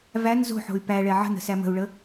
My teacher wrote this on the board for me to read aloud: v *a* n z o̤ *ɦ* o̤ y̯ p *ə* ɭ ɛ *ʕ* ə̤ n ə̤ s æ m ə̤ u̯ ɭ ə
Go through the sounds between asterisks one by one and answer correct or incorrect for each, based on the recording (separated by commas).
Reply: incorrect, incorrect, incorrect, correct